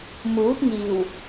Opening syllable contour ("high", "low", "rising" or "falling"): rising